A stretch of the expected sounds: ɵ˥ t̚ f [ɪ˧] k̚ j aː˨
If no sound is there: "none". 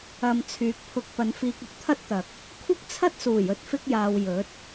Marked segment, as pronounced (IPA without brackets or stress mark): ɪ˧